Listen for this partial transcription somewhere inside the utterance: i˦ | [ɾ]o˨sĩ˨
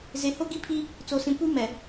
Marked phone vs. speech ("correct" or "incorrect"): incorrect